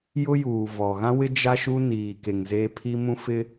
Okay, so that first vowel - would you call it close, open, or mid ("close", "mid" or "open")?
close